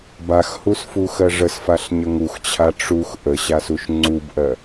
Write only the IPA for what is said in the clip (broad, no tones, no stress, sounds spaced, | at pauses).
b a x h u s f u x ɜ ʐ ə s f a ɬ ɲ ə ŋ u x t͡ɕʰ a ʈ͡ʂ u x ʔ ə ɕ a s u ʃ ŋ͡ǀ u b ʔ ɜ